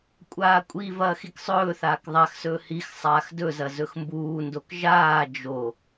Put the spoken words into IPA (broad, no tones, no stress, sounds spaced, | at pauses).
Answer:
kʷʼ aː kʷʼ i v ɐː x i k sˤ ɵː θ aː k ðˤ a x s ɵː h i x sˤ aː x d ɵ z ɐ z ɵ x m b uː n d o k ʒ aː d͡ʒ o